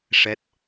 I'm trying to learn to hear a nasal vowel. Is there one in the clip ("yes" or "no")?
no